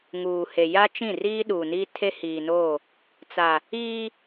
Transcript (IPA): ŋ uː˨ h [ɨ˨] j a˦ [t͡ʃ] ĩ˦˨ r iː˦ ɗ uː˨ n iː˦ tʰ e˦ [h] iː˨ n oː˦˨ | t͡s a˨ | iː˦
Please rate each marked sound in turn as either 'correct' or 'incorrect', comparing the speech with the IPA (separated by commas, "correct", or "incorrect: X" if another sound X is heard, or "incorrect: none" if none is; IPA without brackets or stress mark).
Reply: incorrect: e˨, correct, correct